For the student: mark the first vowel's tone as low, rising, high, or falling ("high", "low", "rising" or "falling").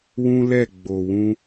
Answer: high